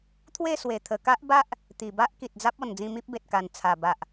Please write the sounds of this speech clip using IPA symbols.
t̪ʰ w e˥˧ s w e˨˩ t̪ʰ ə˨˩ k a˦ ʔ b a˦ ʔ | t̪ i˨˩ b a˦ ʔ k i˨ t̚ d͡z a˦ p̚ ɔ˨˩ n d͡z ĩ˧ m i˦ p̚ b e˨ t̚ k a˨˩ n t͡sʰ a˨˩ b a˨ ʔ

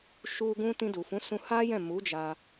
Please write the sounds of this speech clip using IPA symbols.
ʃ u˧ ɡ ũ˧ t ĩ˧ d u˨ f ũ˨˦ s ũ˧ h a˦ j ɛ̃˦˨ m u˨˦ d͡ʒ a˧

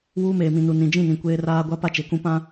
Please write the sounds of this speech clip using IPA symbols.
w uː˦ m eː˨ m ĩ˨ n u˨ n ĩ˨ d͡ʒ ĩ˦˨ n ĩ˨ kʷ eː˦ r aː˦ ɡʷ a˦ p a˦ t͡ʃ e˨ k ũ˦ p ã˦

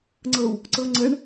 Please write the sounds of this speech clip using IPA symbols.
ŋ͡ǀ ɤ w | ǀ ɤ ŋ͡ǀ ə ɳ

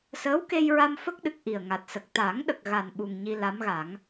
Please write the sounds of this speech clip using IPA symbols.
s əː˧˥ w k e˧ j ɹ a˧ m f ə˦˥ k̚ ɗ ɨ˨˩ k̚ ʔ i˨˩ ə̯ ŋ a˨˩ t̚ s ə˨˩ k̚ t̪ a˨˩˦ ŋ ɗ ə˨˩ k̚ ɣ a˨˩ n ɓ u˨˩ ŋ ɲ i˧ l a˧˥ m ɣ a˨˩˦ ŋ

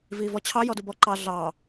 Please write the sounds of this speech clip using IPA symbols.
v iː v ɔ t͡ɕʰ ɑ j ɔ d u b ɔ ǃ ɑ ɮ ɑː

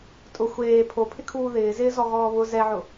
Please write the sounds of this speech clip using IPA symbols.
tʼ ʊ xʷ eː pʰ o pʰ ɪ kʰ uː ð ɪː z ɪː z ɔ ɣ ɔː β ʊ z ɛ ʕ ʊ

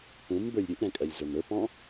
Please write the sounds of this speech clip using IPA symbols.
p ũ m b ə˞ lʲ ɾʲ u ʔ ɾ ɛ̃ kʼ ɜ lʲ z ə˞ m ə˞ p ɔ̃

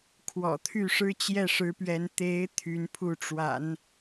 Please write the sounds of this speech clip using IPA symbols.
kʰ w ɔ̰˨˩ t̪ʰ y˥˩ ʂ ɻ̩˥ t͡ɕ j ɛ˥˩ ʂ ɻ̩˧˥ p ɥ ɛ˧˥ n t̪ e˧˥ ɪ̯ t̪ʰ y˧˥ n pʰ u˥˩ ʈ͡ʂ w a̰˨˩˦ n

